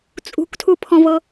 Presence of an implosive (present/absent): absent